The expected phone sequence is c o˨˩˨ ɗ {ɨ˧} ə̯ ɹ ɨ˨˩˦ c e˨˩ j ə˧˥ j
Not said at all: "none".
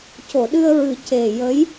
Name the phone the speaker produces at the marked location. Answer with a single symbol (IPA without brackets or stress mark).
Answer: ɨ˧